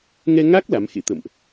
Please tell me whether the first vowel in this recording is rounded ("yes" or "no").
no